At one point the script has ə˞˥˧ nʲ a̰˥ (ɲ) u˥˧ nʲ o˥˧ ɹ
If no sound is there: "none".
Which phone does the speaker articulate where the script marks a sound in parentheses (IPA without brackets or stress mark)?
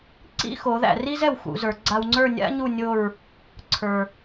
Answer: ɲ